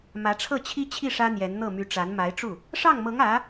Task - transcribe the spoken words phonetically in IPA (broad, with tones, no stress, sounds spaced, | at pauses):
m ä˧˥ ʈ͡ʂʰ ɤ˥˩ t͡ɕʰ i˥ t͡ɕʰ i˥˩ ʂ ä˥ n̪ j ɛ˧˥ n n̪ ɤ˥˩ m y˧˥ ʈ͡ʂ a˧˥ n m a˧˥ ɪ̯ ʈ͡ʂ u˥˩ | ʂ ɑ˥˩ ŋ m ɤ˧˥ ŋ ä˧˥